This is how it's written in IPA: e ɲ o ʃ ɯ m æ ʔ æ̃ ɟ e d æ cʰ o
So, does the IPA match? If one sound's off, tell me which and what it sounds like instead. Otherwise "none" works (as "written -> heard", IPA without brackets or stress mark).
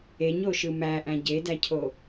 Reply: none